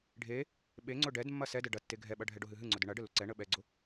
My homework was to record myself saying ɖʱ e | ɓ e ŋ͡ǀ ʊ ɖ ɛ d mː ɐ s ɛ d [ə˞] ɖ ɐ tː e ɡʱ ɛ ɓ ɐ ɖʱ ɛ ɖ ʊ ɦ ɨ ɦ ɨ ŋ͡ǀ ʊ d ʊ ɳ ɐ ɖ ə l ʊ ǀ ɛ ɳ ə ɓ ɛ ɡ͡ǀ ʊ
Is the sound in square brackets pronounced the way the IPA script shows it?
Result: no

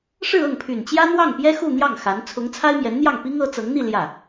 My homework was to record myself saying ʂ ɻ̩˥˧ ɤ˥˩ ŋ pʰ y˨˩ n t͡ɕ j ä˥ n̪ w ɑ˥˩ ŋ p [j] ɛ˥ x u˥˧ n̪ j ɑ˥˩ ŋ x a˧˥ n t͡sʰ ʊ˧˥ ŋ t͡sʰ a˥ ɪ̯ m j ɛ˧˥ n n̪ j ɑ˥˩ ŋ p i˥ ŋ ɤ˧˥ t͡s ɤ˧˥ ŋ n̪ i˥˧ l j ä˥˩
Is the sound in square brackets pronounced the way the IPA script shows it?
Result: yes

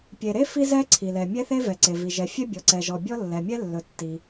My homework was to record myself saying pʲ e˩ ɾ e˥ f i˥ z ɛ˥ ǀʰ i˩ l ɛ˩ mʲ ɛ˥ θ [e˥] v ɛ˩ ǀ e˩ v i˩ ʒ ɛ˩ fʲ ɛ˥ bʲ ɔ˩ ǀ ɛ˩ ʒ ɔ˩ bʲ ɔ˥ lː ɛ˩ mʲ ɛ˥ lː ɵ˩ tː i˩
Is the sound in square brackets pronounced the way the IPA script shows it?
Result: yes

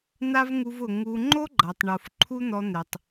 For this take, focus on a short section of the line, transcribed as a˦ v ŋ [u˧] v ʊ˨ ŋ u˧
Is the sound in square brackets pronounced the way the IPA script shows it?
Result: yes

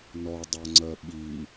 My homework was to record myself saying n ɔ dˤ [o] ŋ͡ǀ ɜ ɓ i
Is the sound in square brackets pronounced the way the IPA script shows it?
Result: yes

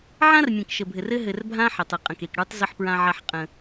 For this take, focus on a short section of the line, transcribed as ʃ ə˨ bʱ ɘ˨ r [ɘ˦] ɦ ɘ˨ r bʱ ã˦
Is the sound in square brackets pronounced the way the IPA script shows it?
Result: yes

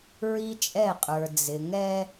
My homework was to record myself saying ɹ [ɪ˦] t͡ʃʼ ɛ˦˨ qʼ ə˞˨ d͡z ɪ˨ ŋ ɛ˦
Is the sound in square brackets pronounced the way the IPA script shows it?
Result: no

